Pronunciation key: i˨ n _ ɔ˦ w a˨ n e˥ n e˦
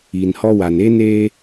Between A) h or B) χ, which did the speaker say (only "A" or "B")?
A